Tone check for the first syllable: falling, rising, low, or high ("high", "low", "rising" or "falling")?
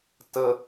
high